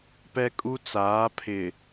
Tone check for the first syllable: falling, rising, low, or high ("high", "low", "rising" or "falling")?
high